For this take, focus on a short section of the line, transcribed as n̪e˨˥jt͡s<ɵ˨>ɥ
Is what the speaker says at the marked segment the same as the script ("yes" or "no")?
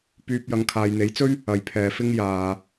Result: no